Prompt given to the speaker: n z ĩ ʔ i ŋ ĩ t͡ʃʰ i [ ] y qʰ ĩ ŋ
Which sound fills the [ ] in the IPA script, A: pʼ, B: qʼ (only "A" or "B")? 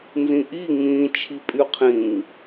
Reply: A